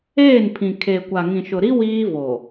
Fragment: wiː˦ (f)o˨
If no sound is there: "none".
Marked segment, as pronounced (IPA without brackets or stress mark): v